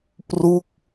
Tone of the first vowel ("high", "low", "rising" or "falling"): falling